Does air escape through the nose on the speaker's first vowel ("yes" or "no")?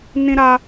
yes